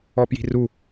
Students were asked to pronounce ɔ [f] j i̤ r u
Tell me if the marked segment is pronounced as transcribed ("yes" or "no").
no